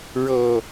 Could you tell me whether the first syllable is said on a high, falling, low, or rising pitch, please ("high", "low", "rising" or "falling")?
low